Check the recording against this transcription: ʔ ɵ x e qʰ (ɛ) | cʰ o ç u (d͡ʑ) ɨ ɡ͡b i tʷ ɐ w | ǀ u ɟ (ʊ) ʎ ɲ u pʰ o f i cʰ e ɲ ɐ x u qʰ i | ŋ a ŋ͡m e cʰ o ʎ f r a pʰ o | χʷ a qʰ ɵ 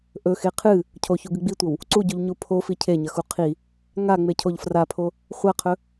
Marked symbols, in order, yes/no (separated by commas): no, no, no